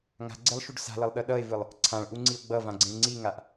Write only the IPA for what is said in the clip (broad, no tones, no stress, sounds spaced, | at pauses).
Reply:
ŋ a̤ ɡ͡ǀ e lˠ ʃ u ɖ s a̤ l ʌ lˠ ɗ ʌ ɗ ʌ e̯ v ɯ lˠ | ǀʰ ã ɭ ʔ u ŋ͡ǀ i o̯ ɡ͡b ʌ v ã ɡ͡ǀ ĩ ɭ ŋ͡ǀ i ŋ a ʔ